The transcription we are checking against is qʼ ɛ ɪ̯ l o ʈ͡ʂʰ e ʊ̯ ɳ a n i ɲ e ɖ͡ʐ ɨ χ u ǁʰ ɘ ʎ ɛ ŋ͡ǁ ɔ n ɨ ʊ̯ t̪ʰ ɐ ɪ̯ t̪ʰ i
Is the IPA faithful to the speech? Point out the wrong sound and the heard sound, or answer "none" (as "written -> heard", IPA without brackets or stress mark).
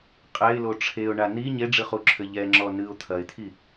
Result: none